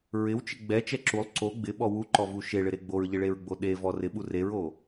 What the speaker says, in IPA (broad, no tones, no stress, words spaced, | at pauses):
ɹɪwt͡ʃɪ ɡ͡bɛt͡ʃɛ ǁulˠ ǀo ɡ͡bɪɓɔ wuǃɔvu ʃeɭɪɾe ɡ͡boɹʎɪɭeɹɡ͡bo ɗevɔ rɪɓur eɹo